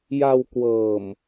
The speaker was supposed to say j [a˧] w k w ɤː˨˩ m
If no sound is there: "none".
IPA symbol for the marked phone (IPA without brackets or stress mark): a˧